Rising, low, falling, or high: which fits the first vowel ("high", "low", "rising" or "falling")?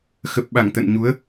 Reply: low